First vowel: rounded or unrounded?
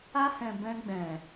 unrounded